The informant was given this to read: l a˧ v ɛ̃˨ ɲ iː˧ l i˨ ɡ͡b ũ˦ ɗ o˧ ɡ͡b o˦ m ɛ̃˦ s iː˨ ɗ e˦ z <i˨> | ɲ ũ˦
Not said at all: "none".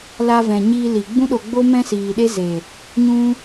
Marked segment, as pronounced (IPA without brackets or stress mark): e˨